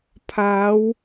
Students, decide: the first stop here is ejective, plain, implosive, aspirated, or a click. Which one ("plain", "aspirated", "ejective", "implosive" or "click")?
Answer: aspirated